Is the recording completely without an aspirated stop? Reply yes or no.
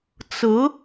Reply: yes